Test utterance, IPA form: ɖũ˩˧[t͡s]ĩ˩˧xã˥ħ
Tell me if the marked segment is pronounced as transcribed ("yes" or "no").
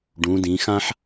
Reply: no